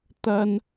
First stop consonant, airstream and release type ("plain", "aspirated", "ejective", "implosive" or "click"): plain